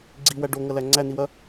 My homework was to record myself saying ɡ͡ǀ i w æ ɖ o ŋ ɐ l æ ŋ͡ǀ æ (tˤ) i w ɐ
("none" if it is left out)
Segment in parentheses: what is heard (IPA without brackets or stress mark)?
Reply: n